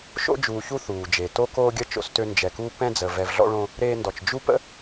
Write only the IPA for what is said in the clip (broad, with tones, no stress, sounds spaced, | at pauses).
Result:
ʃ o̰˦ d͡ʒ uː˨ ç u˦ θ uː˨ d͡ʒ e˨ t o˦ k oː˦ ɡʲ ə˦ t͡ʃ o̰˦ s t ø˦ n d͡ʒ ɛ˨ k uː˦ p ɛ̃˦ d͡z ə˨ v ɛ˨ v ɮ ɔ̰˦ ɭ õ˦ | ɾ eː˦ n d ɔ˨ t͡ʃ d͡ʒ u˦ p ə̰˦